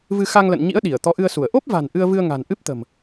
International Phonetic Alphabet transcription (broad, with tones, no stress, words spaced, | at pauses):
vɨ˧xa˧ŋlə̰˧˨n ɲḭ˧˥ə̯ ɗi˧˩ə̯t̪ɔ˨˦ʔɨ˧ə̯su˧˩ə̯ ʔo˦˥p̚va̤˨˩n ʔɨ˧ə̯vɨ˧ə̯ŋa̤˨˩n ʔɨ˦˥p̚t̪ə̤˨˩m